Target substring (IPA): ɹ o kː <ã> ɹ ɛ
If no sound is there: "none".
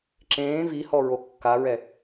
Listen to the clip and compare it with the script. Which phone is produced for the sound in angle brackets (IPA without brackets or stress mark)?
a